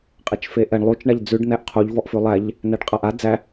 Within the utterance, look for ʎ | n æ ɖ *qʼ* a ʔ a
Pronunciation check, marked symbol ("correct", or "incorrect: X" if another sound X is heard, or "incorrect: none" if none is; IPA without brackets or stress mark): correct